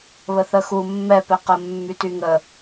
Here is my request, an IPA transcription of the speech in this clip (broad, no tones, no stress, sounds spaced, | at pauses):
β ə θ ə x u mː ɛ p ɛ q ə mː y t y ŋ ə